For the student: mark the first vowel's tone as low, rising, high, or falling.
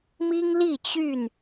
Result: high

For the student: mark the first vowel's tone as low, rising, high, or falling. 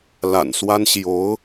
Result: low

